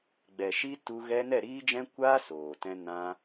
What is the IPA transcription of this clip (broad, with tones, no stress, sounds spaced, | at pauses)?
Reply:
ɡ͡b ɛ˨ ʃ i˦ t u˧ ɣ ɛ˦ n ɛ˦˨ ɾ iː˦ d͡ʒ ɛ̃˦ kʷ aː˦ s oː˨ t ɛ̃˧ n ã˧